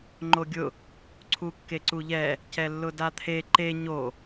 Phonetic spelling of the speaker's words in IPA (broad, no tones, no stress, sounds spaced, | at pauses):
ŋ͡ǃ o ɡʲ ʊ | ǀʰ u kː e ǀ u ʎ ɛ | c ɛ lː ʊ d a t̪ʰ e ǃ e ɲ o